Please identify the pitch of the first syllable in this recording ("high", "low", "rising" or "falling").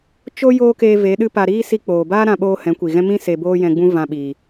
high